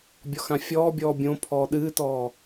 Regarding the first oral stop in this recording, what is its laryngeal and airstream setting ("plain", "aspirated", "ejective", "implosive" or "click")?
plain